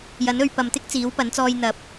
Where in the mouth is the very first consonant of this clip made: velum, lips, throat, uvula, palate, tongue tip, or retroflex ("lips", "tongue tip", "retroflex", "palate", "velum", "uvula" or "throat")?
palate